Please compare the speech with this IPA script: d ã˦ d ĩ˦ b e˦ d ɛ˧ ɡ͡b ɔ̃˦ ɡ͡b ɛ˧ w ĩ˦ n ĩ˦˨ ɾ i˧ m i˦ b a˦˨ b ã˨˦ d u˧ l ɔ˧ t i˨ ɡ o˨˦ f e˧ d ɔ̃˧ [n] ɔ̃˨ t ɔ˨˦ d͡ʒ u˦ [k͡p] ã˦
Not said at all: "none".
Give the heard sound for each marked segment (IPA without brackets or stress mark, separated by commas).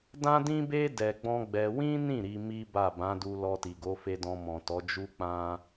m, k͡p